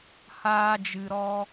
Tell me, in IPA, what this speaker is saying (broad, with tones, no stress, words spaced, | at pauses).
haː˧d͡ʒɨ˨ɾɔ˧